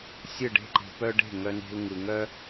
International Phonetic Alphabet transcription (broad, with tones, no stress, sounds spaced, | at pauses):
sʲ ɯ˦˨ ɖ e̤˦˨ ǃ e̤˧ p œ˦ ɖ e̤˦˨ ŋ œ˧ n e̤˧ l ŋ ɯ˨ ŋ œ˧